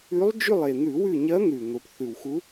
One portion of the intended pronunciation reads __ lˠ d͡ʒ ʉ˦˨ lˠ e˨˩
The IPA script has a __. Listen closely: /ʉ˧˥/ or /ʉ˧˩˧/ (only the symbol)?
ʉ˧˥